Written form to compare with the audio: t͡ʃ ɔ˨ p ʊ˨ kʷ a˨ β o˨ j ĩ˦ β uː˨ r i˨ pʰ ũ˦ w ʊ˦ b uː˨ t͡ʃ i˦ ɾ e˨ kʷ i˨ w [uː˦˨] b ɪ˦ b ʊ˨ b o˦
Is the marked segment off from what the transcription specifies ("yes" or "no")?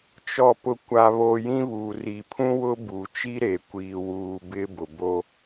yes